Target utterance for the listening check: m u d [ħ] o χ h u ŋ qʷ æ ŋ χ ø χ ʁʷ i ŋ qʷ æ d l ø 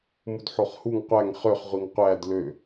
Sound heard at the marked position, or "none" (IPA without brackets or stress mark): ħ